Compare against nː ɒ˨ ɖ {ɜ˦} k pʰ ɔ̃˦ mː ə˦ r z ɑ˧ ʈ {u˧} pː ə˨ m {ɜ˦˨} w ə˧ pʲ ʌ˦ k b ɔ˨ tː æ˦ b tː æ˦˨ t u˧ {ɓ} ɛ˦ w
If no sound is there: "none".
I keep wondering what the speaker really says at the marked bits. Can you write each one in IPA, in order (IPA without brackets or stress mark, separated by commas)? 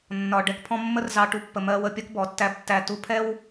ɛ˦, u˧, ɜ˧, pʰ